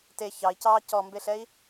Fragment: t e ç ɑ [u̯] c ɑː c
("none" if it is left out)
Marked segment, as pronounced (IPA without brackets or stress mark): i̯